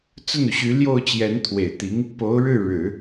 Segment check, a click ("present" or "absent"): absent